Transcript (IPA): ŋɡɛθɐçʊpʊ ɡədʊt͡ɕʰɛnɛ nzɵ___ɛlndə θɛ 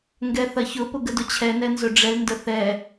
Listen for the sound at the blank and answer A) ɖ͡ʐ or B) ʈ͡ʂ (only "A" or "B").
A